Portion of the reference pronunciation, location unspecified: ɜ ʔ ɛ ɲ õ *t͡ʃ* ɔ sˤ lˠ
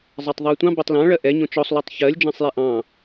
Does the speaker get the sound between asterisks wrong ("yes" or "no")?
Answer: no